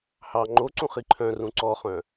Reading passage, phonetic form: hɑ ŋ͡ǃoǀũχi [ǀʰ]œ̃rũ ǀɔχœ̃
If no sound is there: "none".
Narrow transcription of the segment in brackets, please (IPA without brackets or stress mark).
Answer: ǃʰ